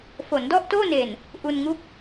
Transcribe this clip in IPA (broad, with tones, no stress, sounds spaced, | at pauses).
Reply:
f o˩˦ n d ɔ˥˩ ʔ t oː˥˩ n e˨˩ n | ʔ u˧ n ŋ u˥˩ k̚